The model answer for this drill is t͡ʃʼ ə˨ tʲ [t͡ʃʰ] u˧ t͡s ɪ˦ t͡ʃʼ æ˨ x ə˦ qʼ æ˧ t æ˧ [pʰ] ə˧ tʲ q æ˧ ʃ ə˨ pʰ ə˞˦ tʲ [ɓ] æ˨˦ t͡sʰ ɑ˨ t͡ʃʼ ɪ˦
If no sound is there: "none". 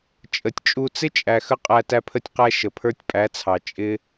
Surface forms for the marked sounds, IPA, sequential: t͡ʃʼ, pʰ, pʼ

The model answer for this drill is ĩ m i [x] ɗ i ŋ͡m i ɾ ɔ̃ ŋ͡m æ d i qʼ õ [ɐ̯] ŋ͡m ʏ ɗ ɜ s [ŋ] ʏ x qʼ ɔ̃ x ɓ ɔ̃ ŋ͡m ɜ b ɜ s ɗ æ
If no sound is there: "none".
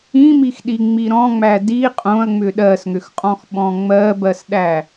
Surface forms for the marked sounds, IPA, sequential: x, ɐ̯, ŋ

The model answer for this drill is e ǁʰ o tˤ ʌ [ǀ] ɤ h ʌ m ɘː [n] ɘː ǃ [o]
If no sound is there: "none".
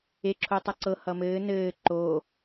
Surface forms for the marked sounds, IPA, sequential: ǀ, n, oː

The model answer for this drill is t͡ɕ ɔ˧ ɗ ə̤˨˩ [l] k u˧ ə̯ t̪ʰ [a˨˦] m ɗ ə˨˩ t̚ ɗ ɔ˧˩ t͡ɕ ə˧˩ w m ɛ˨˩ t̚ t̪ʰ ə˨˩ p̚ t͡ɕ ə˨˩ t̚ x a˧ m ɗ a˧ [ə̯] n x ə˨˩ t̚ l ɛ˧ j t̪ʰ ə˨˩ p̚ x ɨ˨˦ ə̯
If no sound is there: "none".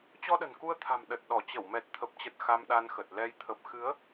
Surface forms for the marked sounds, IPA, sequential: n, a̤˨˩, none

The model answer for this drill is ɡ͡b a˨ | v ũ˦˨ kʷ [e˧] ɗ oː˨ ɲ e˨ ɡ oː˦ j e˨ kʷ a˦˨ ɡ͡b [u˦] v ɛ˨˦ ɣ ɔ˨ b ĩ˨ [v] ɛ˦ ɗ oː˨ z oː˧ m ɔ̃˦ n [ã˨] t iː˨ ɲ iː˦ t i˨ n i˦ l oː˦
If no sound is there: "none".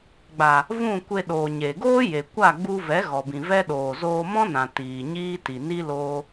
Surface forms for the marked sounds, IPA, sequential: e˧, u˧, v, ã˨

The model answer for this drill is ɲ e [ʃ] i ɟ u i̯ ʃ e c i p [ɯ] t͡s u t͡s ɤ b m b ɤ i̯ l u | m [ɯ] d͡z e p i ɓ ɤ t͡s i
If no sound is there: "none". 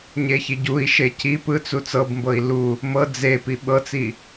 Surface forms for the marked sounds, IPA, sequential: ç, ɯ, ɤ

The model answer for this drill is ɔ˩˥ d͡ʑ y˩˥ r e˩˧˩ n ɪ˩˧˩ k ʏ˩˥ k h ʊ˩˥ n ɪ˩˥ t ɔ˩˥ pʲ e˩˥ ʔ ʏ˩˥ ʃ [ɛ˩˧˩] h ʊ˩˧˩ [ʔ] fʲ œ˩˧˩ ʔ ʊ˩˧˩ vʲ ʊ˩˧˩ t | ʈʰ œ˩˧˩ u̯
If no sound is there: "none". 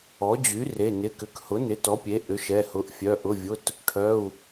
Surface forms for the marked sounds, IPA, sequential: ɛ˩˧˩, ʔ

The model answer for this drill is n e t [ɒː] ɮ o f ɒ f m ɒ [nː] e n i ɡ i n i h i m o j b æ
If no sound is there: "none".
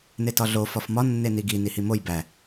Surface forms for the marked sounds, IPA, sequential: ɒ, nː

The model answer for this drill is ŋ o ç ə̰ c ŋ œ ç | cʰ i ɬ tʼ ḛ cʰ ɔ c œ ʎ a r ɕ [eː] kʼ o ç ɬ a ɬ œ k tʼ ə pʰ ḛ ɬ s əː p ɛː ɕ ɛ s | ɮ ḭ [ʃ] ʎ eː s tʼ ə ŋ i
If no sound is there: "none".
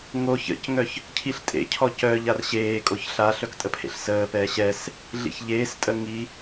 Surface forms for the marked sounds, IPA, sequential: eː, ç

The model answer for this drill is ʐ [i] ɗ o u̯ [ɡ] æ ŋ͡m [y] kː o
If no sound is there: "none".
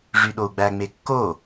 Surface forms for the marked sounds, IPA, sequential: y, ɡ͡b, e

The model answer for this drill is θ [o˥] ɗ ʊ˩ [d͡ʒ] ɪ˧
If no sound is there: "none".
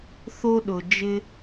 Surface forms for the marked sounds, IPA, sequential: o˧, d͡ʒ

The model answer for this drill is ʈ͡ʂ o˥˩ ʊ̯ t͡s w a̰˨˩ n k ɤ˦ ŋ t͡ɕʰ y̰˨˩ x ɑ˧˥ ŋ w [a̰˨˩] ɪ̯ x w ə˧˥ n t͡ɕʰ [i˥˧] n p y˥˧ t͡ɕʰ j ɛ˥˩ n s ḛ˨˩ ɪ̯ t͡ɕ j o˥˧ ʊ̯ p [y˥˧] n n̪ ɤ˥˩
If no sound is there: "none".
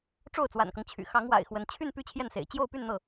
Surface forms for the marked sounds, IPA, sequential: a̰˨˩, y˥˧, y˥˧

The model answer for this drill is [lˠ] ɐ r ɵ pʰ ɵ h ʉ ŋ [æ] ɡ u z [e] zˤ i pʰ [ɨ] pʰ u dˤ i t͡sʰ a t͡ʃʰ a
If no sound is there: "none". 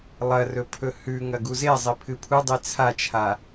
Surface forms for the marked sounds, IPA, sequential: lˠ, ɐ, e, ɨ

